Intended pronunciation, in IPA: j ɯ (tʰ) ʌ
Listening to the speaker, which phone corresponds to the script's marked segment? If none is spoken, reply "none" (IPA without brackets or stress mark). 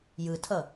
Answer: tʰ